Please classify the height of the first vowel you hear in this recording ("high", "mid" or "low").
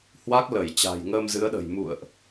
low